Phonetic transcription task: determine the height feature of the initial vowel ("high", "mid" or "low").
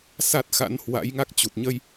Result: low